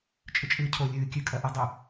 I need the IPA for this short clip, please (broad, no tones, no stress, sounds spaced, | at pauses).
t͡ʃʼ ɨ t͡ʃʼ ɨː cʰ o lʲ ɨː kʲ ʉ kʼ ɐ ʔ ɨ dˤ ɵ